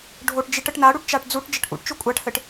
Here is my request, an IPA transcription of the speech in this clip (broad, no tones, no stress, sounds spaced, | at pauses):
ɖʱ o ʈ d͡ʒ i ʈ ə ʈ n a ɽ u ʈ t͡ʃ a ʈ d͡z u ʈ d͡ʒ ə ʈ ʔ ṵ ʈ t͡ʃ o kʷʼ a ʈ h ɘ ʈ